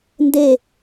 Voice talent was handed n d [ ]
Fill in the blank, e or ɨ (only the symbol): e